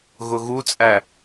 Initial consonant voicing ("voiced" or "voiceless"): voiced